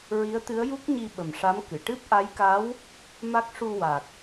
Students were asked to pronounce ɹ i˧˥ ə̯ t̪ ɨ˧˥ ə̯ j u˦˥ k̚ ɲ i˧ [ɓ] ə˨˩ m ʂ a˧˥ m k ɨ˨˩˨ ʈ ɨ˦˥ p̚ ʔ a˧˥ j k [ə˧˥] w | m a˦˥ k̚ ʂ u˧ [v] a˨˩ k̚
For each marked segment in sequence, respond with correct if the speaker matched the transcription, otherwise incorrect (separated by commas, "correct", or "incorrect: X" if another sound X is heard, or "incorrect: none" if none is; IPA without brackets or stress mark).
correct, incorrect: a˧˥, incorrect: w